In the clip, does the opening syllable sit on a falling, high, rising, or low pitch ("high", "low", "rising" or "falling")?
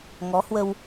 rising